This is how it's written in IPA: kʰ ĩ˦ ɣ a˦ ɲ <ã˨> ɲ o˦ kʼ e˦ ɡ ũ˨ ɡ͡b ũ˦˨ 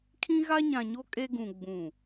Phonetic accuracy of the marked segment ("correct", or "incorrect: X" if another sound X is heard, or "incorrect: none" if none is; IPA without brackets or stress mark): correct